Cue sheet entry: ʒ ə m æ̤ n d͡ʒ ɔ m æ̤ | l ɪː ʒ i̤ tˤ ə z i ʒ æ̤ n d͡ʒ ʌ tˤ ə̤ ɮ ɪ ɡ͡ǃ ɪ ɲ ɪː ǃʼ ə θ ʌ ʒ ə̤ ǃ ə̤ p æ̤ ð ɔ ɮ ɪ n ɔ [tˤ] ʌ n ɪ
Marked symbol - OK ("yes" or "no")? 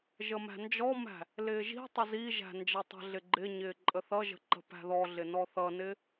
no